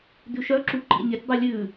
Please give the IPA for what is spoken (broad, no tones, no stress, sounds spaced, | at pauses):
d ʉ ʃ œ ǁ u ǃ ḭ nʲ ɵ tʲ dˤ u lʲ ʉ